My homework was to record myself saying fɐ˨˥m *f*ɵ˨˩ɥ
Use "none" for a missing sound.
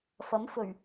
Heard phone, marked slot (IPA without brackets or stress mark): f